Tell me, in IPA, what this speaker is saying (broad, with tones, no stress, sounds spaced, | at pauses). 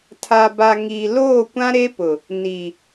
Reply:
tʰ a˨ b a˨ ŋ i˨ l oː˦˨ kʷ ã˦ ɾ e˦ p ʊ˨ | n i˨